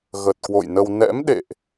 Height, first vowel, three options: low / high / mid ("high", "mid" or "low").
mid